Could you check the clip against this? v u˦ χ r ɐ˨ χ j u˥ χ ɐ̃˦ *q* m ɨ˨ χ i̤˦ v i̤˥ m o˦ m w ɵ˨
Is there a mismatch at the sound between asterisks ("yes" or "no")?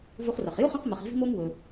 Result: no